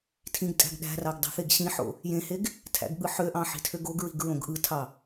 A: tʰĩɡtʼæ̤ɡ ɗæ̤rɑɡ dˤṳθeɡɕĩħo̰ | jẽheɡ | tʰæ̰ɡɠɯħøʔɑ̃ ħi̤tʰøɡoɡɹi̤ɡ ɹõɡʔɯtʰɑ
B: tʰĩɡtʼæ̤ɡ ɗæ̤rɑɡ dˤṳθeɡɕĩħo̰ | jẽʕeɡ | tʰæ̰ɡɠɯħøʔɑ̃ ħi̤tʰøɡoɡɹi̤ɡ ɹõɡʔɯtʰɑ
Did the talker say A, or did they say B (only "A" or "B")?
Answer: A